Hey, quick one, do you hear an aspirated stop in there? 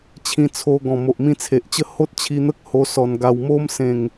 yes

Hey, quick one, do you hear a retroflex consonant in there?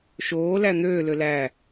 no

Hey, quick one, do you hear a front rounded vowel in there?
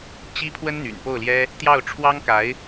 yes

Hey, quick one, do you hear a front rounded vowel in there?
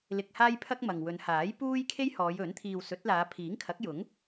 no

